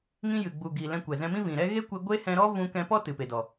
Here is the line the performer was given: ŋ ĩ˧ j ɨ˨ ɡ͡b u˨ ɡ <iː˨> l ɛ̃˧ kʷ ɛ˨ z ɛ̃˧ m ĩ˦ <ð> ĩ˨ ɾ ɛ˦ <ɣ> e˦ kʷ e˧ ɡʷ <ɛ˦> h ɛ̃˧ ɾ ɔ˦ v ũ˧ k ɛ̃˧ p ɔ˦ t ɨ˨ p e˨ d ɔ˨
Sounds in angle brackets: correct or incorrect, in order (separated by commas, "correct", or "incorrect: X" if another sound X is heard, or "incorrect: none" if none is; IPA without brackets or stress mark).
incorrect: i˨, incorrect: v, correct, incorrect: e˦